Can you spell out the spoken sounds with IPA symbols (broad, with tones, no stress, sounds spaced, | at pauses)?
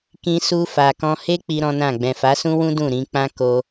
k ĩ˧ s u˧ f a˨ k ɔ̃˧ h e˦ k͡p i˦ ɾ ɔ̃˦ n ã˦˨ ɡ͡b ɛ̃˨ f a˨˦ s ũ˦ w ũ˦ d ũ˦˨ ɾ ĩ˧ k͡p ã˦ k o˧